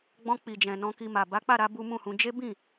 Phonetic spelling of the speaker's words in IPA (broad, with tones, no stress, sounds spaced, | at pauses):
ɡ͡b ɔ̃˧ k͡p i˨ d͡ʒ ɛ̃˨ n ɔ̃˧ k i˧ m a˨ b a˨˦ k͡p a˦˨ ɾ a˨˦ b u˦ m ũ˦˨ h ũ˧ d͡ʒ e˦ b ĩ˦˨